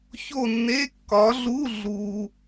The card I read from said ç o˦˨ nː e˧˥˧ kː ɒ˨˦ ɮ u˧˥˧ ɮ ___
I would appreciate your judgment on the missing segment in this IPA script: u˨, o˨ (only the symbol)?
u˨